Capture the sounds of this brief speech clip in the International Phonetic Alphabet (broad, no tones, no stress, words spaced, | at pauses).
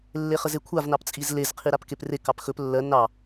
lːeχəzekʷʰav nɑpt͡sʼizlez qʰiɾapkepre kɑpxɵp lːɜ nɑ